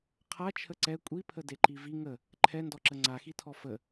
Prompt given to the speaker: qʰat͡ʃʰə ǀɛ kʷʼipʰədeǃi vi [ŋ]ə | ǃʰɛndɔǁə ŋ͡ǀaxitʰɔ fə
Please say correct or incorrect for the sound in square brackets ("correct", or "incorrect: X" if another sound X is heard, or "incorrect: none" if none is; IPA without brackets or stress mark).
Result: correct